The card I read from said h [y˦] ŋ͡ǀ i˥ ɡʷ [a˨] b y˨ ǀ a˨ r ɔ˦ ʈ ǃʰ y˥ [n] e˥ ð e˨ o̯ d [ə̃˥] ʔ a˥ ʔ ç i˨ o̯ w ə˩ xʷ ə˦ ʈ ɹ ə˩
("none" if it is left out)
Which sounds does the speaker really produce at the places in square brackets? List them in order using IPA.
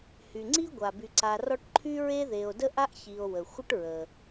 y˩, a˩, ɹ, ə˥

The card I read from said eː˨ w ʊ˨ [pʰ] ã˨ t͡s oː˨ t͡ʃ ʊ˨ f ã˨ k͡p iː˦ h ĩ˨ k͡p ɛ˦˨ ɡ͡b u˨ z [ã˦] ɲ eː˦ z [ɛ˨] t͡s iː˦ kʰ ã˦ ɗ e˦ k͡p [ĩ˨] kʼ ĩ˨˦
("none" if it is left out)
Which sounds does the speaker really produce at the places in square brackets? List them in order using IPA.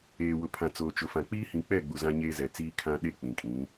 pʰ, ã˦, ɛ˨, ĩ˨

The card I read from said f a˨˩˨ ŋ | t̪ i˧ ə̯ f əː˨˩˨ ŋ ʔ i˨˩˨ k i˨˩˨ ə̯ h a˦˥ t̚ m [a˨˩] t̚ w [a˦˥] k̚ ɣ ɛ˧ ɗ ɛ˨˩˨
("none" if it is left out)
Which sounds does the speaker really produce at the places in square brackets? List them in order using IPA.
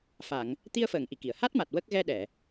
a˨˩, ə˦˥

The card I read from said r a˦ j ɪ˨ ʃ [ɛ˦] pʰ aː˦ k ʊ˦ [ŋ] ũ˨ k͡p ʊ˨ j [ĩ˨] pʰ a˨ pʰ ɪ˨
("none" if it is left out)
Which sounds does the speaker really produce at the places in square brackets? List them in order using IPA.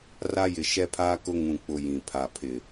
ɛ˦, ŋ, ĩ˨

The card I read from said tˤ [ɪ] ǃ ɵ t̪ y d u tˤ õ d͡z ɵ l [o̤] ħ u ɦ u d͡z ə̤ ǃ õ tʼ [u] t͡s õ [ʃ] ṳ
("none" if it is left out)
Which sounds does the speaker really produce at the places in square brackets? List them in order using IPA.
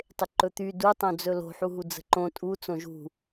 ɪ, o̤, u, ʒ

